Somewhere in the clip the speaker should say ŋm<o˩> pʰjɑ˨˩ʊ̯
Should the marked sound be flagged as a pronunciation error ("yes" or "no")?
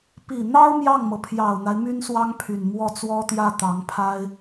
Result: yes